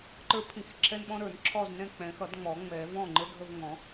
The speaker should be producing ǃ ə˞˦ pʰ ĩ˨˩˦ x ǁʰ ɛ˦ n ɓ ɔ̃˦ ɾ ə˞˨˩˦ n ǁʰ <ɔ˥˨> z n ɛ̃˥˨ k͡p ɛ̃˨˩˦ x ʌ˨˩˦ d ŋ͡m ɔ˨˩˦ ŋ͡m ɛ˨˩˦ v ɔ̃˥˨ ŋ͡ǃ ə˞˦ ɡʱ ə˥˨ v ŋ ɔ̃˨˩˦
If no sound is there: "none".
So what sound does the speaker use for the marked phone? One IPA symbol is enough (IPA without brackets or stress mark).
ɔ˥˨